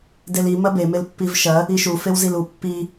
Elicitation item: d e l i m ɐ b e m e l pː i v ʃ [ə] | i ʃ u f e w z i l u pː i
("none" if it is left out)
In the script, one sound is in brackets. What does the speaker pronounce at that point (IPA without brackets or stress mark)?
ɐ